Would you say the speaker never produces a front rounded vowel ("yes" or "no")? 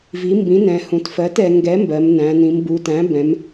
yes